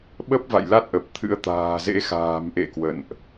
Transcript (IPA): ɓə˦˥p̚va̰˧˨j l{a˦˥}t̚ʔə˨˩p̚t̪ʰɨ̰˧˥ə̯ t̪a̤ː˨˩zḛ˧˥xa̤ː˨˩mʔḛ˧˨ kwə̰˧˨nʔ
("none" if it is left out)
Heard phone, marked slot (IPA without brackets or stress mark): a˦˥